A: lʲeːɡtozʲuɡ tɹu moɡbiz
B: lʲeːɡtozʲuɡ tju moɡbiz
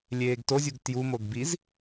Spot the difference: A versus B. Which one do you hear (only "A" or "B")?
B